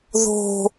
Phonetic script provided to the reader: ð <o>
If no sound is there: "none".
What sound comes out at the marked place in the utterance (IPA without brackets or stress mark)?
o̤